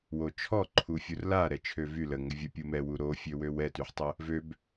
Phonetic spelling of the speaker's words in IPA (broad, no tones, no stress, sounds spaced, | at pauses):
w o t͡ʃʰ ɔ ǃʰ u fʲ u r l a ɾ ɛ t͡ʃʰ ø v y l ə ŋ ə vʲ ə pʲ u m ɛ w u ɾ o fʲ ø w ø w ɛ t y ħ tˤ ə | v ø b